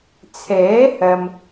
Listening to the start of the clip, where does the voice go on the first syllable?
rising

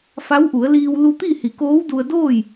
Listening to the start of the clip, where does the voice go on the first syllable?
rising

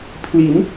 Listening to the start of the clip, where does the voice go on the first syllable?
rising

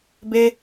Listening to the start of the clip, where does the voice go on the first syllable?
high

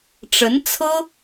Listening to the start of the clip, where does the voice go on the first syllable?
rising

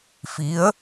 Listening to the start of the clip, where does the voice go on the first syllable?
rising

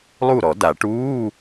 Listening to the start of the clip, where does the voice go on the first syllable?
falling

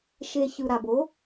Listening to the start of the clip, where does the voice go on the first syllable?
low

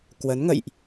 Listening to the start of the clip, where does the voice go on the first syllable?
rising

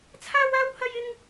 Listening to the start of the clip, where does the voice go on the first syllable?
high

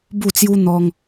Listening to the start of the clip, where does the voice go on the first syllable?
falling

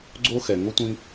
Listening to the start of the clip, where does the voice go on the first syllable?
high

